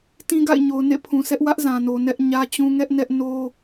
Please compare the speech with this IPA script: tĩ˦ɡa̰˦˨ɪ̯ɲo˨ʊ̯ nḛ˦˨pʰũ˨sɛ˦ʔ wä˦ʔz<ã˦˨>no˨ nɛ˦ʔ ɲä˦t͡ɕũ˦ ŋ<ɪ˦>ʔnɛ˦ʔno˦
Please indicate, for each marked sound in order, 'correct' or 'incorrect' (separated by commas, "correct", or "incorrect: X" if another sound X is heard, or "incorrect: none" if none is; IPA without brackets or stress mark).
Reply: incorrect: ã˨, incorrect: ɛ˦